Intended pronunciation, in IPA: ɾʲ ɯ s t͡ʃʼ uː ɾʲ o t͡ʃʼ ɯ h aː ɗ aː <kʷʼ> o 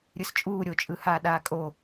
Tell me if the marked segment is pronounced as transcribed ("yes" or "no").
no